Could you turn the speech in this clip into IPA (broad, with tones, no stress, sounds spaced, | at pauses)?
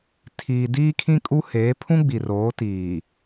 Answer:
tʰ iː˨ d iː˦ kʰ ĩ˦ kʼ u˦ h eː˨˦ pʰ ũ˦ ɡ͡b i˨ r oː˨˦ t iː˨